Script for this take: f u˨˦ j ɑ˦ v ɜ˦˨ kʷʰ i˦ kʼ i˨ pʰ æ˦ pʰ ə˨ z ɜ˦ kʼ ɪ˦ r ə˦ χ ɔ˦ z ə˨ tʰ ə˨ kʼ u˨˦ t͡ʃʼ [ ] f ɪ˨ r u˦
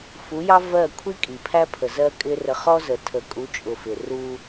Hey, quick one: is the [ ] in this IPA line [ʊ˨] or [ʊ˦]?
ʊ˨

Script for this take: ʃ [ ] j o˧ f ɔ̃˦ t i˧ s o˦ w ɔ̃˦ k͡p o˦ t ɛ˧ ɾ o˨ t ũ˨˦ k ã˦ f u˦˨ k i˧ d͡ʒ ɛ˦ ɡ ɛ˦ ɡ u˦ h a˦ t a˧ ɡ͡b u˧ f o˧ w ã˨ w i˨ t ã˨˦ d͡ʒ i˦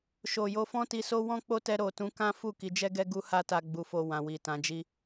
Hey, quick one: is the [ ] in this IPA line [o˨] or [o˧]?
o˨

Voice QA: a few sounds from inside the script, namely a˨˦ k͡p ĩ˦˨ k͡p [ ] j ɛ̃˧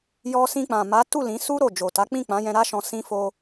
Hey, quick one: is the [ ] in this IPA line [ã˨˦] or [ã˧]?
ã˨˦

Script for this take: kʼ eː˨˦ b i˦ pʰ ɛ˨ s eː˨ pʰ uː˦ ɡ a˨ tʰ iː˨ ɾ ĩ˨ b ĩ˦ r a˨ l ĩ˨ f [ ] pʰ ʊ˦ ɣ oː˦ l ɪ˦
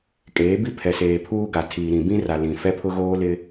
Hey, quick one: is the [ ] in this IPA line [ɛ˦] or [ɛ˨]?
ɛ˦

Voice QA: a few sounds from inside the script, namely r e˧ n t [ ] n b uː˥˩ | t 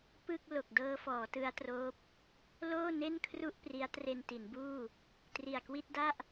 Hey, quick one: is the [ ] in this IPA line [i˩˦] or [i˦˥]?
i˩˦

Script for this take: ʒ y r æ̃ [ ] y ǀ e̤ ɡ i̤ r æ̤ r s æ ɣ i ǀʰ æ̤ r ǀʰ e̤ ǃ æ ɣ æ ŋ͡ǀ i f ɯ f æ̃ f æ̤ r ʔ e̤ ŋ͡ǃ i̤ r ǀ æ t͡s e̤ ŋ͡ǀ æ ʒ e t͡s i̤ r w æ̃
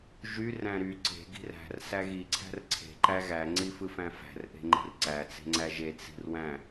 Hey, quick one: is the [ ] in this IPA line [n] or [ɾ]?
ɾ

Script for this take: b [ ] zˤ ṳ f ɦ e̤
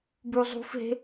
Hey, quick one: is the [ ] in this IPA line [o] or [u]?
u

